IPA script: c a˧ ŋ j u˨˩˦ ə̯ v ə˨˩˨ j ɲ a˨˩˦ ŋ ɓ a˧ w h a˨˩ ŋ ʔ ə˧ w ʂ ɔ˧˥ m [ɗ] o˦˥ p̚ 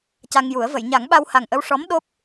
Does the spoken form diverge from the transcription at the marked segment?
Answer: no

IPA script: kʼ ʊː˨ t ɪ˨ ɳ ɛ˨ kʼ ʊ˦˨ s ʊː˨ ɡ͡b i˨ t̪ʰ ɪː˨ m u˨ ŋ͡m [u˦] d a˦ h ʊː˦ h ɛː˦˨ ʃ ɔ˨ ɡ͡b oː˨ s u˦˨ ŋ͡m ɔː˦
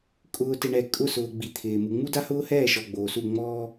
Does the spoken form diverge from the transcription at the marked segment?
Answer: no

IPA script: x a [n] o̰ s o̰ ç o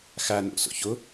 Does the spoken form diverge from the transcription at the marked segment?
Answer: no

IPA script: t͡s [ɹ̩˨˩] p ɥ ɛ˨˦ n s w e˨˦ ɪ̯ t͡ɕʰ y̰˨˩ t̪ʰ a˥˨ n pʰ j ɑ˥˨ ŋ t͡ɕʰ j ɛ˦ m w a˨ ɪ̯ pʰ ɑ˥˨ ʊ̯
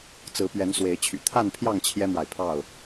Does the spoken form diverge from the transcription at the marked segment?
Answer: yes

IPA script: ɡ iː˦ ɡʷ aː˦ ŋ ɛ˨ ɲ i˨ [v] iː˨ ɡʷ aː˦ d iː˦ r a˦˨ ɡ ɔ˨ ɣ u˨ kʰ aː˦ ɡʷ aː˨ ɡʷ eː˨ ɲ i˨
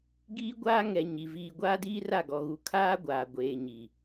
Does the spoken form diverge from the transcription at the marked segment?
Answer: no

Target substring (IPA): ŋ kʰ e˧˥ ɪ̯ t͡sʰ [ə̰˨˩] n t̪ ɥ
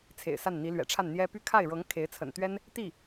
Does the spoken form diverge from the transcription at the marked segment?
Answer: no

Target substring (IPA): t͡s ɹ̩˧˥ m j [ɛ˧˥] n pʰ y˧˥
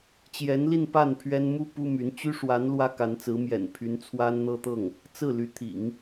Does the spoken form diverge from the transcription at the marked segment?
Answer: yes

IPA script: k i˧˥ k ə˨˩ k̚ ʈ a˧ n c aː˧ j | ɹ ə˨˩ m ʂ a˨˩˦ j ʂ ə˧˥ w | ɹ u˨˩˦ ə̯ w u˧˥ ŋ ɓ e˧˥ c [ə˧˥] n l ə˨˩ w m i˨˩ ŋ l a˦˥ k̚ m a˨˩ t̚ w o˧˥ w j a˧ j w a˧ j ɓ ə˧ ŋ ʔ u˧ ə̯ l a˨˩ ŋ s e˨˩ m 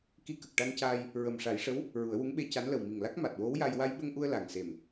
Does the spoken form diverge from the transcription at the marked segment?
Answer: yes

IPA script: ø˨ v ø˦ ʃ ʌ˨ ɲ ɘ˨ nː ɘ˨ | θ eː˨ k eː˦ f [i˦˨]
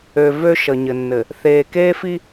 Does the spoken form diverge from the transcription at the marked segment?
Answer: yes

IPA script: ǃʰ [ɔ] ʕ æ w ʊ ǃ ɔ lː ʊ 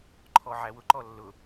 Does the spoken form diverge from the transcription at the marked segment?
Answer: no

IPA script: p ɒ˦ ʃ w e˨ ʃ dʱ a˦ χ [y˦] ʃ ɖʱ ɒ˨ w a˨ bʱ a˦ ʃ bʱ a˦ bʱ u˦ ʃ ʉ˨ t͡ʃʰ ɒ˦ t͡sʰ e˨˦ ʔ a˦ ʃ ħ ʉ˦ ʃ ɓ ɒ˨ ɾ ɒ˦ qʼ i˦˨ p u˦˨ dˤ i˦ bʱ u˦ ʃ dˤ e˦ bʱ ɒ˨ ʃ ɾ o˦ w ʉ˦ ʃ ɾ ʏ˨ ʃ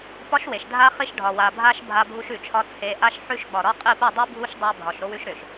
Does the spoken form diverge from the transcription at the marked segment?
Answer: yes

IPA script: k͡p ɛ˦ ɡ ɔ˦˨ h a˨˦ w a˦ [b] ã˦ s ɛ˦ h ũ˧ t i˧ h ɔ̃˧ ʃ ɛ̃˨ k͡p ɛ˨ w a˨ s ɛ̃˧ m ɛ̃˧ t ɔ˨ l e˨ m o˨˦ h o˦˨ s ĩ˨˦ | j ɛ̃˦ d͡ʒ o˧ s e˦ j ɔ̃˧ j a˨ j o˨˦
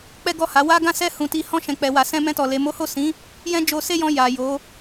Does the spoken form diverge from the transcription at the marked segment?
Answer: yes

